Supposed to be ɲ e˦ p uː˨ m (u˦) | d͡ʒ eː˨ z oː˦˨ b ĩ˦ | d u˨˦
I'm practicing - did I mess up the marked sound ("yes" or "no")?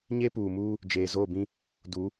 yes